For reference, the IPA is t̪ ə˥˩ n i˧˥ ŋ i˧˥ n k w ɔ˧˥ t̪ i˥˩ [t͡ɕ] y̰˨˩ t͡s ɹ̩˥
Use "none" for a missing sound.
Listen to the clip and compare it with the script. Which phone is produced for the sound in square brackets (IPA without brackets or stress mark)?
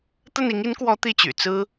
t͡ɕ